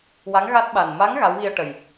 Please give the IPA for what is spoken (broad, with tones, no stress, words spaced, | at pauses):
wa˧˥ŋɣa˦˥t̚ɓa˨˩n ma˧˥ŋ ɣa˧˥wɣi˧ə̯ ʈə˨˩j